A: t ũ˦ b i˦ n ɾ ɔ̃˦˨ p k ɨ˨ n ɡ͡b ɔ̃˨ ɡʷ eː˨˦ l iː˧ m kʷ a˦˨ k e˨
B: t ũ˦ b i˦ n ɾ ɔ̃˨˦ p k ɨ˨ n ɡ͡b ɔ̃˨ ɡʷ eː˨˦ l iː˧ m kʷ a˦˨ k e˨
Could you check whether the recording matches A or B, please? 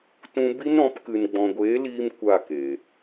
B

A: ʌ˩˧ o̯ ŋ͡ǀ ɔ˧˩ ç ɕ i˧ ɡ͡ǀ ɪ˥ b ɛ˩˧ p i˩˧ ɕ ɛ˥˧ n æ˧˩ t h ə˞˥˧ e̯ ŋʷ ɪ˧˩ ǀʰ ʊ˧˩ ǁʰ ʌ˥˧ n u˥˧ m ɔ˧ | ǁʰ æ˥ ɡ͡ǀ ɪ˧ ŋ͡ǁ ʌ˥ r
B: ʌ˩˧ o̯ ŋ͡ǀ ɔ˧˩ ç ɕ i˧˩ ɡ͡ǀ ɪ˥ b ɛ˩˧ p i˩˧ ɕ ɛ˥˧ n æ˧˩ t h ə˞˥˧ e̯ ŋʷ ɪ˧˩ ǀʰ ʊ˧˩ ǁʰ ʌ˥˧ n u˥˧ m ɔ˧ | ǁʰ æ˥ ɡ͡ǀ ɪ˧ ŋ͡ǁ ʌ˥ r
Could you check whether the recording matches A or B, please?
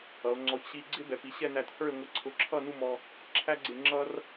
A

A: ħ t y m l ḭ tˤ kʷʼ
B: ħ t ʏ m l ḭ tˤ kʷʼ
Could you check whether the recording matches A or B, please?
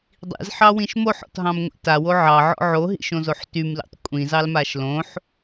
A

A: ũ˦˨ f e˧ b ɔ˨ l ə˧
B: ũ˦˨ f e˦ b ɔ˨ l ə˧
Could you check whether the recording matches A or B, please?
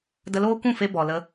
A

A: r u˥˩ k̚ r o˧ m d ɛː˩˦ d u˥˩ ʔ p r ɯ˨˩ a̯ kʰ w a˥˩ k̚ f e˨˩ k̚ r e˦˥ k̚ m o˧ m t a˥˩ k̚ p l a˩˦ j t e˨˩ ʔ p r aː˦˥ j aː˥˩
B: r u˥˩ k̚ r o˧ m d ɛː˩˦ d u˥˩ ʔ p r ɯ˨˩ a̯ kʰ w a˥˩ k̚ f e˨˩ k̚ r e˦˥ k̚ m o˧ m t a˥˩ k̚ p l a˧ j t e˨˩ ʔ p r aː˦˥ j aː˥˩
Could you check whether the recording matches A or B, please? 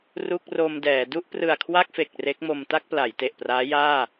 A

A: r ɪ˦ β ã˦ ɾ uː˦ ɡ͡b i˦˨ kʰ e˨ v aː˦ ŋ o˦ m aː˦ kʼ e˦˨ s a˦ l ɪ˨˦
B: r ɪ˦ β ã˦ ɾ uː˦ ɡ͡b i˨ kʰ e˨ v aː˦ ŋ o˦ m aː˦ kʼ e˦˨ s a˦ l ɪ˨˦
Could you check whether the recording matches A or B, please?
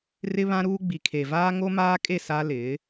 B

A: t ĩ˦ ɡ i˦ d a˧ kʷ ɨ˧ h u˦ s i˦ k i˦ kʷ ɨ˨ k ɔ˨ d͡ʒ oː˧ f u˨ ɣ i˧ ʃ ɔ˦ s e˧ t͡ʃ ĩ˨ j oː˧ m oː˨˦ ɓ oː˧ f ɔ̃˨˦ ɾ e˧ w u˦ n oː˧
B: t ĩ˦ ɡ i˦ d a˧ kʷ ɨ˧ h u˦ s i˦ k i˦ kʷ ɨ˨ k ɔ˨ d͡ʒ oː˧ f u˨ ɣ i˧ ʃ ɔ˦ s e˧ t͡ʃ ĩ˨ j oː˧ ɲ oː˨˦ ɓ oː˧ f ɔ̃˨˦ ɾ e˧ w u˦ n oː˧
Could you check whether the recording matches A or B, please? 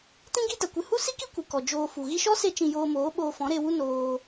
A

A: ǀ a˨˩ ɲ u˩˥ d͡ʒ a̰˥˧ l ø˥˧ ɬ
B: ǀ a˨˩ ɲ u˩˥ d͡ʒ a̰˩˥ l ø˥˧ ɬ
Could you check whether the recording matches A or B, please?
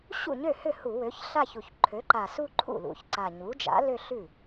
B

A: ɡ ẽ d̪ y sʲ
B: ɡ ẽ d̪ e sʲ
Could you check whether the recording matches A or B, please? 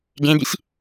A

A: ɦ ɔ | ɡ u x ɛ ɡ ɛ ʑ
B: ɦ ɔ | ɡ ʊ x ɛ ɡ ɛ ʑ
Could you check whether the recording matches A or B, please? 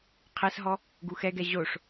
A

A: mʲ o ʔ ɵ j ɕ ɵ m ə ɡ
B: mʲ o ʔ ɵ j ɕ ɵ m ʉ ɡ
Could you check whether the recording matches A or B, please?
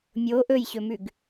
B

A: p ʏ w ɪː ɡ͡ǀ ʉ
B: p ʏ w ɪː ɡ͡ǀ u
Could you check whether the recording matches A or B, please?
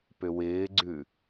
A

